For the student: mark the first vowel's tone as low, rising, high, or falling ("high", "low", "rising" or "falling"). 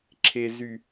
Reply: low